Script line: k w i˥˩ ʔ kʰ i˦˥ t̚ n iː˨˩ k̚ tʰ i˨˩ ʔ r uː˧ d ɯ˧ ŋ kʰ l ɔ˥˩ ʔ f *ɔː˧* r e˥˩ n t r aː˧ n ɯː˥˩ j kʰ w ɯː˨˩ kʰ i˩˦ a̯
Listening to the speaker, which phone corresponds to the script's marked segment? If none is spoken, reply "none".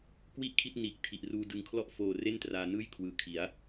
oː˧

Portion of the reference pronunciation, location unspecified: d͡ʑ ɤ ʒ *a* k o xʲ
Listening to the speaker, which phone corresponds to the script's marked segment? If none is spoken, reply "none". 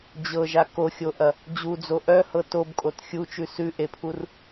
a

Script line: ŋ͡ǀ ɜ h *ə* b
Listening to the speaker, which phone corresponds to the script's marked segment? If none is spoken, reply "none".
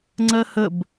ə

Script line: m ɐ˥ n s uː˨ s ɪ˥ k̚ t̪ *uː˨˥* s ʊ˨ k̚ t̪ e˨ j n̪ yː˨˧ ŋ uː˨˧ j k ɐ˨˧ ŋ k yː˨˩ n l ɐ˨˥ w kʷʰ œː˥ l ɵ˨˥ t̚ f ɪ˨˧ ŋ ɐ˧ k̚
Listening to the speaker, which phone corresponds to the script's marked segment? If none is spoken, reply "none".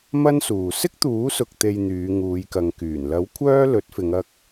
uː˨˥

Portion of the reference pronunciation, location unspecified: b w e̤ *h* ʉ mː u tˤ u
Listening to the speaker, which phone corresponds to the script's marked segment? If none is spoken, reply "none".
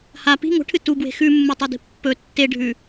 x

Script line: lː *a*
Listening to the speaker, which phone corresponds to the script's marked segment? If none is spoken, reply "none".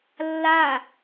a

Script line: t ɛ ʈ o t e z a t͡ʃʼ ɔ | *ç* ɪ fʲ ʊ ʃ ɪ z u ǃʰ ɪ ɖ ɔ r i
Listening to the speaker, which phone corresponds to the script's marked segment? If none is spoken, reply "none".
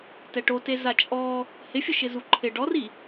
h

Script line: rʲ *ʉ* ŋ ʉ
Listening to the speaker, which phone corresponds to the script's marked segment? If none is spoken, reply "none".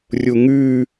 u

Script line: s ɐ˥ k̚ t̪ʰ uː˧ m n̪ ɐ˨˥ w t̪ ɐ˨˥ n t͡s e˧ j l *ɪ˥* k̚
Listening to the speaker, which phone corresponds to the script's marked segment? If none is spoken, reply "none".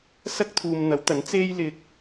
ɪ˨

